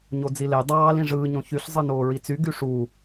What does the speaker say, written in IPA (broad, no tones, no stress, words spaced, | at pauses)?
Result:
ɲod͡zile dˤɑːl ĩʐɯː ɲõçyɬ zˤɯnoːɹit͡sy ɡyʂu